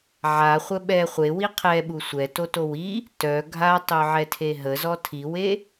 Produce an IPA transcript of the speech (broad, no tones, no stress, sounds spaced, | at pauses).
ʕ a χʷ ə ɓ ɛ χʷ e w i qʰ ɛ ɓ u sʷ ɛ t o t o w i | t œ ɡʱ a tˤ œ ʕ ɛ tʰ e ɦ ə z ɔ tʰ i w e